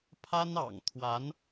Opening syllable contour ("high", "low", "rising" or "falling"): high